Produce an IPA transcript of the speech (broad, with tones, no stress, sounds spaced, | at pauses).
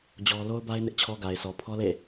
d͡ʑ ɔ˦ l o˦ ʊ̯ b a˦ ɪ̯ n ɪ˦ ʔ t͡ɕʰ ɔ˦ ɡ a˨ ɪ̯ s ɔ˨ pʰ ɔ˦ l ḛ˦˨